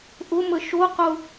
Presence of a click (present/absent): absent